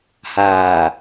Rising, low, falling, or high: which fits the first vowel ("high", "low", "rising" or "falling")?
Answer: low